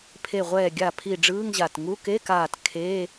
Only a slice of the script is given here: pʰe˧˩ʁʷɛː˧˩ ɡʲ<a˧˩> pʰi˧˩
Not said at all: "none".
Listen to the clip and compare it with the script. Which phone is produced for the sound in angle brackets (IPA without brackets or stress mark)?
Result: a˧˩